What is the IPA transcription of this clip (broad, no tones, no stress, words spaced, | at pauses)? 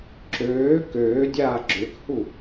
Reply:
ǁøː køː dʲaːɡ͡ǁøkhu